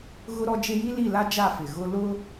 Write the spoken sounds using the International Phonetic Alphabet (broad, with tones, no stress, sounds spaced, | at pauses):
ɣ ʊ˦ ɾ ɔ˦ d͡ʒ e˦ j i˦ l i˦˨ l a˦ d͡ʒ a˦˨ f ɪ˨ ɣ ʊ˦ l ʊ˦